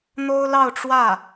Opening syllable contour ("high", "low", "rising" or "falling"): high